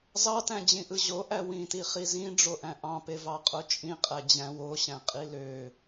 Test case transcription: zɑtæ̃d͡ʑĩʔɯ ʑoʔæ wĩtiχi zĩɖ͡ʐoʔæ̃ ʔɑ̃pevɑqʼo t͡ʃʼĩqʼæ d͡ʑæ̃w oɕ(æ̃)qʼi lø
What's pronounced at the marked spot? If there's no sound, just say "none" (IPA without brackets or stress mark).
æ̃